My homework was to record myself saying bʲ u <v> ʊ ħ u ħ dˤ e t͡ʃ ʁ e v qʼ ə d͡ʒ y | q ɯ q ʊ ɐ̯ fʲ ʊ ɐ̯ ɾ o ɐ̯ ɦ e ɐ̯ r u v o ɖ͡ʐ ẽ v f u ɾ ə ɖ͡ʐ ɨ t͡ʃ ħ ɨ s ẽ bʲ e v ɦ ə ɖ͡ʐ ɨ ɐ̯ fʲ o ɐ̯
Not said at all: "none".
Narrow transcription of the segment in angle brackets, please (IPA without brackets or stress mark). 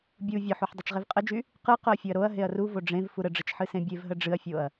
vʲ